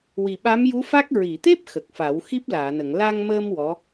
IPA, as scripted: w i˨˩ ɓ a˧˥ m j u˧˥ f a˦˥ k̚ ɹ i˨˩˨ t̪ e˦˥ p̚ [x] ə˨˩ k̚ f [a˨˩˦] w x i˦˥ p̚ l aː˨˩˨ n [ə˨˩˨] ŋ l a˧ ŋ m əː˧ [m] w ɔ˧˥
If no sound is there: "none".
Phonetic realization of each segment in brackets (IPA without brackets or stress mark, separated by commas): x, a˨˩˦, ə˨˩˨, m